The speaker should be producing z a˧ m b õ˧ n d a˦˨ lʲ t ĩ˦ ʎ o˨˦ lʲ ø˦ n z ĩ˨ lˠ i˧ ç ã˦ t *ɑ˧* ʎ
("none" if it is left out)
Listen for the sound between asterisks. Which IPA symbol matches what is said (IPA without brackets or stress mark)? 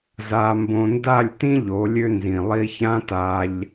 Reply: a˧